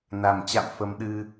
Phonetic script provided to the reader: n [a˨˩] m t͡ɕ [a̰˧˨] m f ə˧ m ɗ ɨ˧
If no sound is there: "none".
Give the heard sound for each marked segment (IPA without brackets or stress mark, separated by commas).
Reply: a˨˩, a̰˧˨